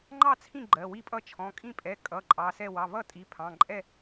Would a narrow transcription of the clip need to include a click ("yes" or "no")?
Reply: yes